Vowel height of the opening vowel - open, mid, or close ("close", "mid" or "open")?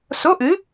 mid